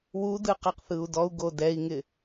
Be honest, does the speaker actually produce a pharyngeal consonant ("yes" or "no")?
no